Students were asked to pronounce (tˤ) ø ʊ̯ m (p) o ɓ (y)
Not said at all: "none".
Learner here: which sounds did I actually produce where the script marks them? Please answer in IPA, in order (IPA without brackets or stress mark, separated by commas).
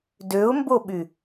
d, b, y